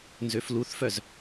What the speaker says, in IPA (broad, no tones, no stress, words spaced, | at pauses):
nzøfluθfœz